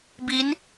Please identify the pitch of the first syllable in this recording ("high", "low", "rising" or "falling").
rising